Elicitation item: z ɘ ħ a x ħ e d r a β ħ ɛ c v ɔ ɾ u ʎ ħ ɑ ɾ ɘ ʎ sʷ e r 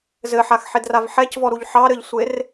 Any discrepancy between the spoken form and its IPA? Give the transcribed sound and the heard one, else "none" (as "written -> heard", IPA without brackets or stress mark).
β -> v